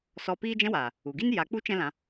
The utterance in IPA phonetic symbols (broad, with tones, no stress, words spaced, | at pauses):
sɔ˧ piː˦d͡ʒɛ̃˦waː˨ | u˨ɡi˦n ja˨˦k͡pu˦ t͡ʃɛ̃˦lã˧